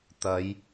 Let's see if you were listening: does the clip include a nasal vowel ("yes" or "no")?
no